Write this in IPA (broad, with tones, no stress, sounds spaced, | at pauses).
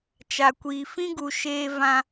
t͡ʃ a˨ kʷ iː˨ f ĩ˦ ɡ u˨ ʃ eː˦ v ã˦